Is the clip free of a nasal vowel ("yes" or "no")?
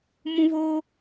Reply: no